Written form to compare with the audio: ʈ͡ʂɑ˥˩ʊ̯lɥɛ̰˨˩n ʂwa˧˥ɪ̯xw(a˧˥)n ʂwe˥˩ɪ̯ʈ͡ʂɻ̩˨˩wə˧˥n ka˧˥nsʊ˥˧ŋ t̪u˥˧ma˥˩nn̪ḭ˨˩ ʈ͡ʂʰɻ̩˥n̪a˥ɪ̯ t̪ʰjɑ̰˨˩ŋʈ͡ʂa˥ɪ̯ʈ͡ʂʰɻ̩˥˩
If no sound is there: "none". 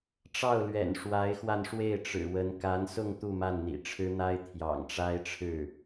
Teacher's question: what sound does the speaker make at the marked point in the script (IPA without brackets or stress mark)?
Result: a˧